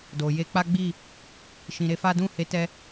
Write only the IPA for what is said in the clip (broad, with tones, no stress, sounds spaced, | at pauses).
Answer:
d o˨ j e˧ k͡p a˦ ɡ͡b i˦˨ | ʃ ĩ˨ ɾ e˨˦ f a˦ d ũ˦˨ h e˨˦ t ɛ˧